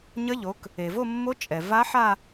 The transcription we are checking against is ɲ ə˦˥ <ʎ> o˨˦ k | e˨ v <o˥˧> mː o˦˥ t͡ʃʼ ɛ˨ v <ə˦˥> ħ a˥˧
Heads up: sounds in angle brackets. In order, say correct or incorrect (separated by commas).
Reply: correct, correct, incorrect